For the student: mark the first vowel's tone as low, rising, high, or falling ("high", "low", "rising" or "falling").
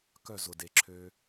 falling